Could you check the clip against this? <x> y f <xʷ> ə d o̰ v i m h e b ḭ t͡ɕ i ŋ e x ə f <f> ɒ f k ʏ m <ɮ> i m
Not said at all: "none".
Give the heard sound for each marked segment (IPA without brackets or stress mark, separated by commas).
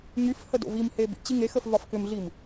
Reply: ŋ, h, v, ɮ